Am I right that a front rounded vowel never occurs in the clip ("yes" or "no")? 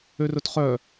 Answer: no